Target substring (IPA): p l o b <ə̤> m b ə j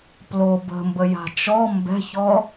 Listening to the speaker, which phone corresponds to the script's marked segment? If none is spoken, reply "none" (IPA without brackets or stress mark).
ə̤